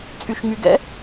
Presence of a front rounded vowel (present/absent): present